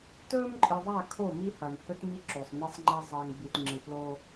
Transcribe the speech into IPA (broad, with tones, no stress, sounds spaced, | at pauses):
t ɵː˦ m ǃʼ ɨ˨ ðˤ a˦˨ kʰ o˦˨ m i˦ h ɐ˨ n h ɵ˦ t m i˦ ǁ o˨ sˤ n e˦ sˤ ŋ͡ǃ a˦ zˤ ɐː˨ ŋ b i˨ t ŋ͡ǁ ɨ˨ p l oː˦